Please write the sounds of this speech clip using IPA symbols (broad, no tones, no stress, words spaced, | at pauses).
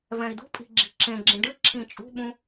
vɛ̃i̯dṳpʼi̤ ɡ͡ǁi̤ǁẽɡ͡ǁĩ ɖɨ ǁʰĩt͡ʃʼṳɓũ